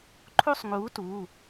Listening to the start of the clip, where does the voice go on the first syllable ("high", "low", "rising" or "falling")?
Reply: falling